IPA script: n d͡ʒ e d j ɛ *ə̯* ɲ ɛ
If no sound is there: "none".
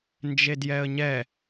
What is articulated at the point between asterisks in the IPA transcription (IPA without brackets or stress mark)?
ə̯